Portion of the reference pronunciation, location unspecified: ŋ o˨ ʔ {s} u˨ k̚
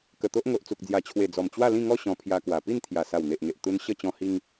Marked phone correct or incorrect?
incorrect